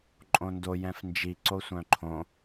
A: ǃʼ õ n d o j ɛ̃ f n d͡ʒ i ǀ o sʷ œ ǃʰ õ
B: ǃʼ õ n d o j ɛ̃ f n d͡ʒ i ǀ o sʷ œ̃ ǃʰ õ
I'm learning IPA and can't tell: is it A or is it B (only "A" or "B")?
B